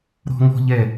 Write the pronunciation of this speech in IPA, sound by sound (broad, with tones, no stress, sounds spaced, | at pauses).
ɾ ɔ̤˦ ŋ ɔ̤˦ ʎ ɛ˦˨